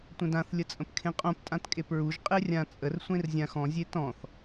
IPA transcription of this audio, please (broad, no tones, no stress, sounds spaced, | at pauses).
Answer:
tʷ ə̃ d ã θ lʲ ə t͡sʼ ə̃ p kʰ ẽ qʼ õ p tʼ ã t kʼ e p ɹ u ʒ qʼ e rʲ ã t͡sʼ ə r sʷ ẽ r zʲ ã x ɔ̃ zʲ e t ɔ̃ θ